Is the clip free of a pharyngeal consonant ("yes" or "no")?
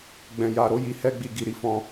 yes